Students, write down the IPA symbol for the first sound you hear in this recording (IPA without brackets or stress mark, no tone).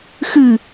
x